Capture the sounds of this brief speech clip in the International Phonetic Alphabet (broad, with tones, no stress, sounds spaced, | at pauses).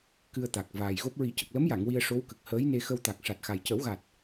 k ɨ˧ ə̯ t̪ a˨˩ k̚ v aː˨˩ j ɣ o˦˥ p̚ ɹ i˨˩˦ c ə˨˩ k̚ l ə˧˥ m j a˨˩˨ ŋ w i˧ ə̯ ʂ o˧˥ w k ə˨˩ k̚ h əː˧˥ j n e˧ x ə˧ w t̪ a˨˩ k̚ ʂ a˨˩ t̚ x a˨˩ j c ə˨˩˦ w ɣ a˨˩ t̚